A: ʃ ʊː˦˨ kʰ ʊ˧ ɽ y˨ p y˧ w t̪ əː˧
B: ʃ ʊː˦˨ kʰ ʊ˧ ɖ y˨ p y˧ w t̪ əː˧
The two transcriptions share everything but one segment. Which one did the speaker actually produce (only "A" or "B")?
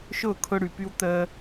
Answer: A